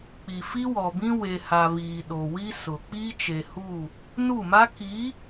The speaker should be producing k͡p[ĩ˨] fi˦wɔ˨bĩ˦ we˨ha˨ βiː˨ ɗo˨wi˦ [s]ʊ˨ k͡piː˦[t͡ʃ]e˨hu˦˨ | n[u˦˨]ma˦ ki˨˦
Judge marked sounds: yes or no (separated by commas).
no, yes, yes, yes